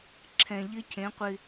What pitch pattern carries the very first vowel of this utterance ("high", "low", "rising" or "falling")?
low